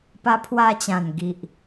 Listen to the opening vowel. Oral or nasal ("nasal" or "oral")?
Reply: oral